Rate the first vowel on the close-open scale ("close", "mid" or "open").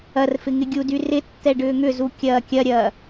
open